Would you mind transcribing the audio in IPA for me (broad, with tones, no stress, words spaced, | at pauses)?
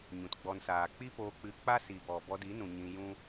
ɲũ˨tɡ͡bɔ˧n saː˨k͡pi˦poː˧k͡pɨ˧ k͡pa˦si˨ bɔ˨bɔ˧di˨˦nũ˨ ɲĩ˧jũ˦